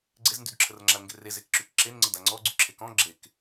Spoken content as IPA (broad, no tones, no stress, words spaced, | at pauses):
ɡ͡ǀezndydǁʰərŋ͡ǁal ŋɡerezekǁyk ǁenŋ͡ǀəda ŋ͡ǀɔ ɡ͡ǀyǁʰekɔ̃ ɡ͡ǁek